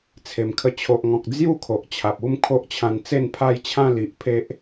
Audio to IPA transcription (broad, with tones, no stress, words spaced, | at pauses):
t͡sʰe˨˩mkʰə˧ t͡ɕʰo˨ʔŋɔ̃˨k̚ d͡zju˥˧ kʰo˨ʔt͡ɕʰa˨p̚ u˥˧m kʰo˦ʔt͡ɕʰã˧n t͡se˥˧npʰa˥˧jt͡ɕʰã˦ li˨ʔpʰe˦ʔ